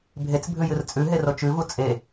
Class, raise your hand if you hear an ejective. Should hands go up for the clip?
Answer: yes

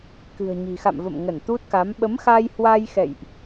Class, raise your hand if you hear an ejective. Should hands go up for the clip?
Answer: no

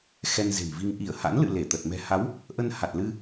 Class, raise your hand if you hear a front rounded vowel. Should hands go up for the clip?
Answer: no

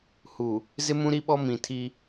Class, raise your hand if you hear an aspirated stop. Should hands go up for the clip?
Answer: yes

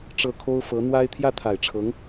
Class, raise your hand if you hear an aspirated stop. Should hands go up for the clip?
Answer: yes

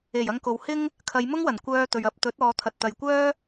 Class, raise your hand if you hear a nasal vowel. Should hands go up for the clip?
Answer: no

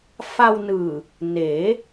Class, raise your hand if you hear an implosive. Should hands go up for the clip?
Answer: no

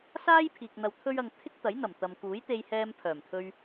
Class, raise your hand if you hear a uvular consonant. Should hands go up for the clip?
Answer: no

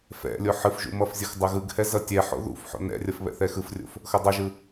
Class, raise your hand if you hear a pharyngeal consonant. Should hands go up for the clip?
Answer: yes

